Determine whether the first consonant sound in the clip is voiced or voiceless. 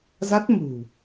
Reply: voiced